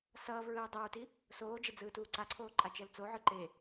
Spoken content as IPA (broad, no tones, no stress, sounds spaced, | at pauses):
s ʌː v ɹ ɯː dˤ o ɹ t i | s oː d͡ʒ e d͡z ɯː t uː ǀ a ǀʰ oː ǃʼ a t͡ʃ ɛ l t͡s o ʕ ɯ ǃ e